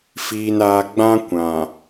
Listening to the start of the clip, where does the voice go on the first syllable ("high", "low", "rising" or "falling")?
low